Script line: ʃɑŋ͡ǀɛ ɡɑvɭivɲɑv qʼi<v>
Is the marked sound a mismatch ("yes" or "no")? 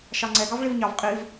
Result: no